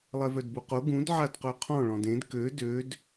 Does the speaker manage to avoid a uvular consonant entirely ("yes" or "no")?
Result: no